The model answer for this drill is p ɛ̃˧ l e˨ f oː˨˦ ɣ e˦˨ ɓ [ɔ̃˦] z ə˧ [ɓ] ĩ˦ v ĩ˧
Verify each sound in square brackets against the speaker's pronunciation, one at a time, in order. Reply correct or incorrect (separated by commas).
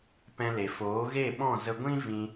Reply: incorrect, incorrect